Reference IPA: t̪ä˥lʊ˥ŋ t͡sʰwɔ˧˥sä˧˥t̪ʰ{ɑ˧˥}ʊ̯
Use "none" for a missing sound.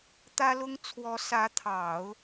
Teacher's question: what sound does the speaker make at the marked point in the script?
ɑ˨˩˦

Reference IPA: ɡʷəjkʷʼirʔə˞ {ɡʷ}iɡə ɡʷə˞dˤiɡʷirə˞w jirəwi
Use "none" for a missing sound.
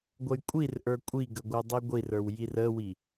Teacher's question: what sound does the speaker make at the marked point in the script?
kʷʼ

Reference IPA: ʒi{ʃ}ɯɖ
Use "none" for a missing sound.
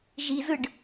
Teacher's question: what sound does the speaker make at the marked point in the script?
z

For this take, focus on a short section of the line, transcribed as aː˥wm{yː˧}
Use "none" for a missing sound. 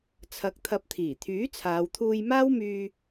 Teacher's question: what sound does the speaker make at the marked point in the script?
yː˧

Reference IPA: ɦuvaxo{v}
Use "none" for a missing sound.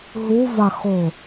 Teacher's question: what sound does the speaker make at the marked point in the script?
none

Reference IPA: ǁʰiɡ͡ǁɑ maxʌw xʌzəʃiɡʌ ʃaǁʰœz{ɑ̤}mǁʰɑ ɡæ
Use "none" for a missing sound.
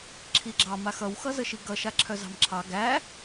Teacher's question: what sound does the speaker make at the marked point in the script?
ɑ̤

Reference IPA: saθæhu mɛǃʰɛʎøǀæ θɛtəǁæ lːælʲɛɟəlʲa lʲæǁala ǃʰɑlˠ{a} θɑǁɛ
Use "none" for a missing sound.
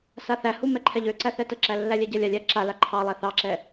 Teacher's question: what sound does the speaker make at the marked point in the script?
æ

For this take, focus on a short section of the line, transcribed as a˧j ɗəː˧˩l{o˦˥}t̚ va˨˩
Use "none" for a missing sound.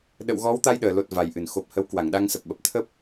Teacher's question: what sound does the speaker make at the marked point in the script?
o˨˩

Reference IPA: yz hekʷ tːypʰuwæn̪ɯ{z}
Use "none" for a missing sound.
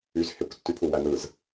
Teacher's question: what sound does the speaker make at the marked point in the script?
z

